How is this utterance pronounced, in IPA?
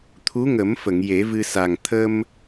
t̪ʰ u˧˥ ŋ ə˨˩˦ m f ə˨˩˨ ŋ j e˨˩˦ v ɨ˧ s a˨˩ ŋ t̪ʰ ə˧ m

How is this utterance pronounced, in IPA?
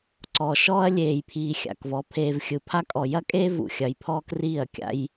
ǀ ɔ˨ ʃ ɔː˦ ɐ̯ lʲ eː˨ j pʰ iː˨ xʲ a̰˨ k v ɔ˨˦ pʰ eː˨ v xʲ ɯ˨ pʰ a˦ kʼ ɔ˨ j ɐ˦ kʼ eː˦ v ṵ˨ xʲ ɐ˨ j pʰ ɔː˦ k r iː˦˨ ɐ̯ kʲ a̰˦ j

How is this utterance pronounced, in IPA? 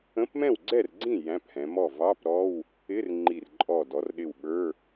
ə̃˧˥˧ p m ɛ̃˥˩ w ɡ͡ǀ ɛ˥˩ r ɡ͡ǀ ĩ˥˩ j æ̃˧˥˧ p h ɛ̃˩˧ m ɔ˥˩ v ɑ˧˥˧ p ɾ ɔ˧˥˧ w | ɪ˧˥˧ r ŋ͡ǃ i˧˩ r ǃʼ ɔ˧˩ d ɔ˩˧ r ɗ ɪ˧˩ w ɓ ə˞˧˥˧

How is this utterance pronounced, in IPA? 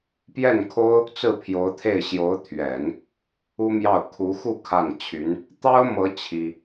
p j ɛ˥˩ n kʰ o˥ ʊ̯ | t͡s ɹ̩˥˩ pʰ j o˧˥ ʊ̯ t̪ʰ e˥˩ ɪ̯ ɕ j o˧˥ ʊ̯ t̪ʰ ɥ ɛ˨˩˦ n | u˥ m j ɑ˥˩ ʊ̯ kʰ u˧˥ x u˥˧ kʰ a˥˩ n t͡ɕʰ y˧˥ n | t̪ ɑ˥ ʊ̯ m ɤ˧˥ t͡ɕʰ i˥

